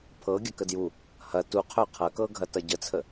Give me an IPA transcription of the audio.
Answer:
pʰ ɤ ɡʲ ɐ k ə d j u | h ɐ t u qʰ œ qʰ ɐ k ɤ ɡʱ ɐ t ɐ ɟ ə t͡sʰ ə

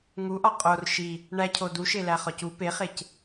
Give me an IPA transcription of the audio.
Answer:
ŋ u ʔ ɒ qʼ o r ʃ i | ɳ æ cʰ o d u ʃ e l æ χ ɒ c u p e χ e c

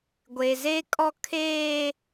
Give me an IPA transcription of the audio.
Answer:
ɡʷ e˨ z e˦ kʼ ɔ˦ kʰ eː˦

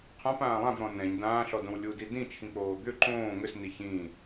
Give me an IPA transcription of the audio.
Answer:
qʰ ã p ãː lˠ ã v ɾ ɔ̃ n ɛ̃ ɲ d ãː ɬ ɔ d õ w lʲ u d i d ĩ t͡ʃʰ ĩ k͡p oː d̪ ʏ ǃ õː ŋ ʏ s n i ç ĩ

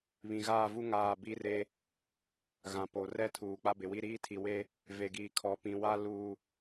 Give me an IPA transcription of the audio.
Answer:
β ĩ˨ ɣ aː˦˨ v u˦ ŋ aː˦˨ b i˦ r e˦ | ɣ ã˨ p o˨ r ɛ˦ tʰ uː˨ k͡p a˦ b ɪ˨ w i˦ ɾ iː˦ tʰ i˨ w e˦ | v e˨ ɡ iː˨ kʰ ɔ˨˦ p ĩ˨ w a˦ l uː˨

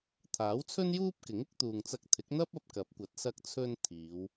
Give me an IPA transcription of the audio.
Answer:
t̪ʰ aː˨˥ w t͡sʰ ɵ˥ n j uː˥ p̚ k ɪ˨˥ ŋ ɪ˥ k̚ t̪ uː˨ ŋ t͡s ɐ˧ k̚ t̪ʰ ɪ˨˥ k̚ n̪ ɐ˥ p̚ ɐ˧ p̚ k ɐ˨˥ p̚ kʷ ɐ˨˥ t̚ s ɐ˧ k̚ t͡sʰ ɵ˧ n t̪ʰ iː˨˧ w

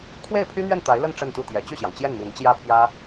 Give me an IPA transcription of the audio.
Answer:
kʰ w e˥˩ ɪ̯ pʰ y˥ n̪ ɥ ɛ˥˩ n t̪ a˧˥ ɪ̯ l ə˥˧ n ʈ͡ʂ ə˥˧ n t̪ u˥˩ t̪ j ɛ˧˥ t͡ɕ y˥˩ ɕ j ɑ˩ ŋ t͡ɕ j ɛ˥˩ n m i˧˥ n t͡ɕ j ä˥˩ pʰ j ä˥

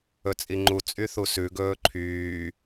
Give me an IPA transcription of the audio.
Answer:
ɵ t͡sʼ i ŋ͡ǃ u t͡sʼ y θ u s ʉ ɡ ɵː ǃʰ yː

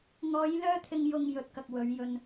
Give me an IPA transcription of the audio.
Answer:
ŋ ɔː˨˧ j l œː˧ t̪ʰ ɪ˨ ŋ j ʊ˨ ŋ j ɵ˨ t̚ k ɐ˨ k̚ w ɵ˨˧ ɥ j ɵ˨ n

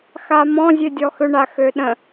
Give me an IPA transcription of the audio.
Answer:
x a m ɔ̃ zʲ ø dʲ ɔ x ʏ ɳ a x ø ɗ ə̃

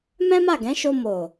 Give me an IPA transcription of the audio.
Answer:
m ɛ̃˦ m a˦˨ ɡ ɛ̃˨˦ ʃ o˧ m o˨

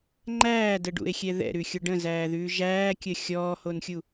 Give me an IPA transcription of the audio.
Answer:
ŋ͡ǃ æː d ə ɖ ṵ e̯ xʲ ɛ ð ɛ̰ ɾ ʉ xʲ o ɖ ə̃ z æː ð ʉː ʒ æː kʲ ə xʲ ɔː h o n xʲ u

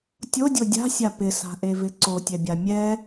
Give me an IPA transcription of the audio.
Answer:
tʲ o dʲ o dʲ a̤ sʲ a p ɪ s a̤ ʔ e v ɪ ǀ o tʲ ɛ bʲ a mʲ ɛ

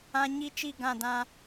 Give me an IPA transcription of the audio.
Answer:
ã˦ ɲ i˦ t͡ʃ i˦˨ ɡ ã˦˨ d ã˦

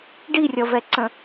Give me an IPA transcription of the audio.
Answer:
ɖ i rʲ ʌ v ɛ ǀ ə̃

